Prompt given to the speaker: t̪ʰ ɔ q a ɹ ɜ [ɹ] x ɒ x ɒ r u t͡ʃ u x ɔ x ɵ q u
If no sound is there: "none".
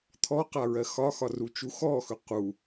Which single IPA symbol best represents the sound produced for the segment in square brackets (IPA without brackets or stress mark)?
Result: none